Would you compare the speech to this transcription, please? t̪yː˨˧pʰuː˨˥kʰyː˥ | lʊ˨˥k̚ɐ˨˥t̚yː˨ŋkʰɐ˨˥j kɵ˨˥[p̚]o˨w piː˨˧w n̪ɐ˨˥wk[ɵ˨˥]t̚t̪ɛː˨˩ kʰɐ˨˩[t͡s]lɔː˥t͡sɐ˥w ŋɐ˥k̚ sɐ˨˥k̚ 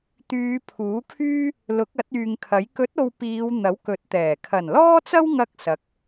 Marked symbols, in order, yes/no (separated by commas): no, yes, no